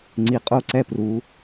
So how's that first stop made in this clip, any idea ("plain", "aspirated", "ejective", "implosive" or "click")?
click